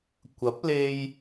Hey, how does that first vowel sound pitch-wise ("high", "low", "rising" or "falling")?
rising